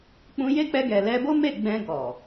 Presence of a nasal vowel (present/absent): present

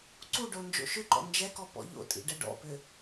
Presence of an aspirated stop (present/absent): absent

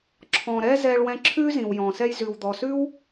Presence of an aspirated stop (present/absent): present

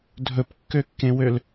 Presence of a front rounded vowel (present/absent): present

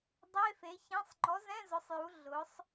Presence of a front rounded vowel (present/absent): absent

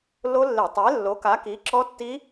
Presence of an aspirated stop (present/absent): absent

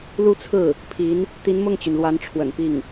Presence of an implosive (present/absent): absent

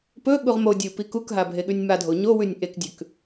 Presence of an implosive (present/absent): present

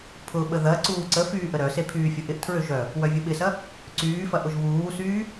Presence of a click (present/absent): present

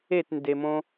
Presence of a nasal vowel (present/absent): present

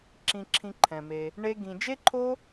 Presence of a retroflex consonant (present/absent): present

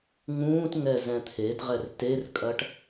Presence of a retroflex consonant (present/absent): present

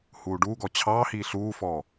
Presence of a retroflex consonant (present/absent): present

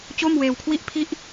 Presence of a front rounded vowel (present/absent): absent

